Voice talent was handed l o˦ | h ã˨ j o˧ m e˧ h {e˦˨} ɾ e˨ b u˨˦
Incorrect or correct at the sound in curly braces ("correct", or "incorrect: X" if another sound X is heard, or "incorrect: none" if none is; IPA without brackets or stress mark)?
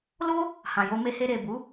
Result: incorrect: e˧